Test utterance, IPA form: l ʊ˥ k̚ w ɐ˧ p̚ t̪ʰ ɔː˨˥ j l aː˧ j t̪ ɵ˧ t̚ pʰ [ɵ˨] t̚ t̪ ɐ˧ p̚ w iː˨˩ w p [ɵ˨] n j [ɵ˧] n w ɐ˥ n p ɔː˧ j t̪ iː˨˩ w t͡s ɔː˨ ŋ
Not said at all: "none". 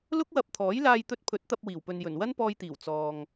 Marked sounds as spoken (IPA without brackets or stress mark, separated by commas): ɵ˨˥, ɵ˨, ɵ˨˩